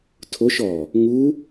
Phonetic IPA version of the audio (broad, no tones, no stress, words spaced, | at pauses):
tʰoʃ ɔ | ŋu